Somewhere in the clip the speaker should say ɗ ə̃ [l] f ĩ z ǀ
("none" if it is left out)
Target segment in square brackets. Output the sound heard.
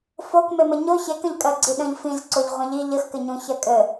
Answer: ʎ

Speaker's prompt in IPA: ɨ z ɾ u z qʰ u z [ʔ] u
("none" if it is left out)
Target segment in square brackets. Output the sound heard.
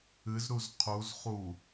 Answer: χ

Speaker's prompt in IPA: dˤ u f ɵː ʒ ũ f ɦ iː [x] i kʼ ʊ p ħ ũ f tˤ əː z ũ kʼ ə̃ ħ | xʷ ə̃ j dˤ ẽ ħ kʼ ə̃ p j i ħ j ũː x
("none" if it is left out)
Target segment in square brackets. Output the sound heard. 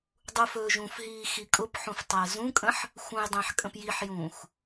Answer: x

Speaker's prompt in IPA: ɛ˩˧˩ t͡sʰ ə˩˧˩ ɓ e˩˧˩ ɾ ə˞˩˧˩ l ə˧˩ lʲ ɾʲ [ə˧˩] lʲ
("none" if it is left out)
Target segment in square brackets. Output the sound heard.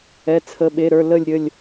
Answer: ə˧˩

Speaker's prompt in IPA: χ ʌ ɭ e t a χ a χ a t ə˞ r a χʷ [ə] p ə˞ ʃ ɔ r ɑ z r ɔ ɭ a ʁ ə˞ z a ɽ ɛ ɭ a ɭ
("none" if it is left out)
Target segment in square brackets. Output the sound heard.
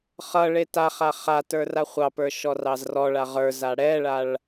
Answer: ɑ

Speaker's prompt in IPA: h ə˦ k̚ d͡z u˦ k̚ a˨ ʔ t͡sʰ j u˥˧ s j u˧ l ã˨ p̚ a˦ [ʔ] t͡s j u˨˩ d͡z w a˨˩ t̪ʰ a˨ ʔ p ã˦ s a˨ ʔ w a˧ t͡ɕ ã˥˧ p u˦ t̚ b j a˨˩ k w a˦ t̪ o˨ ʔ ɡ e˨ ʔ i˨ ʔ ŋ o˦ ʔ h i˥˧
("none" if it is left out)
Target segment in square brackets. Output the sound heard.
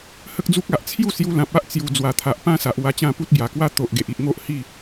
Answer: ʔ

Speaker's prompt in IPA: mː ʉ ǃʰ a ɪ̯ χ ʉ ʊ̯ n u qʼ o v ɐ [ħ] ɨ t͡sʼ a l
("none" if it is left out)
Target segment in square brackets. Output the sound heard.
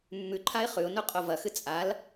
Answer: x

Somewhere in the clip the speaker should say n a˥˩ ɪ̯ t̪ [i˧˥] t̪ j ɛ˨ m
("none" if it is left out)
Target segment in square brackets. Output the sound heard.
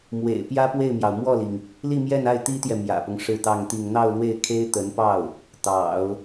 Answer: i˥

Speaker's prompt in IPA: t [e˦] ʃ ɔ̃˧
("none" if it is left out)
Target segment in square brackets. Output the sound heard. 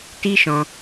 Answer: i˦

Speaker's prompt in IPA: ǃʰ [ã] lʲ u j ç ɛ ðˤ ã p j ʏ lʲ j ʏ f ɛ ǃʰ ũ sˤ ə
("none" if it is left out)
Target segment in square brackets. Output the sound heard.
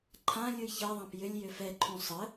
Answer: ã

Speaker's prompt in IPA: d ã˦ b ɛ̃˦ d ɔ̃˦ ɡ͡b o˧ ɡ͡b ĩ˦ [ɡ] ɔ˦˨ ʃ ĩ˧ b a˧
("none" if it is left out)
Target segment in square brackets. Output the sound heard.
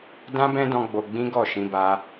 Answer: ɡ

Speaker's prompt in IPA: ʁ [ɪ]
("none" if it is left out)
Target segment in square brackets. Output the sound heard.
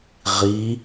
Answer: i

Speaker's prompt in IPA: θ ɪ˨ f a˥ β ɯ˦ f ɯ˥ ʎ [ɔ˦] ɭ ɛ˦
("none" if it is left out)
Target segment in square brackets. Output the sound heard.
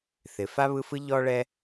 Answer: ɔ˦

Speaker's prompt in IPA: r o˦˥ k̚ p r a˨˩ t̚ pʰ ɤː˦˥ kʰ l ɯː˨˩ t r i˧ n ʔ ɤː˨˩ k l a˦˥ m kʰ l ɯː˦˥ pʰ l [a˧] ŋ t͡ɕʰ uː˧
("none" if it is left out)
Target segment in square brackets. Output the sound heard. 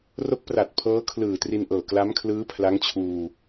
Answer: a˦˥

